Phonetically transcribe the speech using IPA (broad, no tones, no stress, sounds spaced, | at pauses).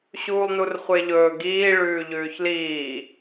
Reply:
ɕ uː lˠ n u r χʷ e ʎ ɵː ɡ iː ɭ ʉː ʎ ʉː ç l iː